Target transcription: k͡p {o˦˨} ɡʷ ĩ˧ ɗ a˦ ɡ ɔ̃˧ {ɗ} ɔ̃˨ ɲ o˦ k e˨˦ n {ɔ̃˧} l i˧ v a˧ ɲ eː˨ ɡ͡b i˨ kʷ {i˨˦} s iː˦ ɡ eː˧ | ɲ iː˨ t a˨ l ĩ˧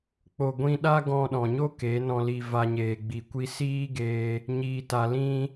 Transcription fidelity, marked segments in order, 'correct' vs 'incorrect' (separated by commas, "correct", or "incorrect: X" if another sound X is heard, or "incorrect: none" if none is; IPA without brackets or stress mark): incorrect: o˨, correct, correct, incorrect: i˧